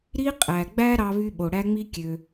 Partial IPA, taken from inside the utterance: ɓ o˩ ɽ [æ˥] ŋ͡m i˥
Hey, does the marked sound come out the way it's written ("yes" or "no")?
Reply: yes